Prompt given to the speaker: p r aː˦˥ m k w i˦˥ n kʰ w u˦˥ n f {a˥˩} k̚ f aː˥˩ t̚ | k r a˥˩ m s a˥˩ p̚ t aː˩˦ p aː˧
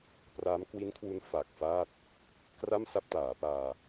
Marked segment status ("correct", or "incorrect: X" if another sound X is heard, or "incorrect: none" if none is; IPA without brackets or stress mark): incorrect: a˨˩